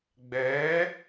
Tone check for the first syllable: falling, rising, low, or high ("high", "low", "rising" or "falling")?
rising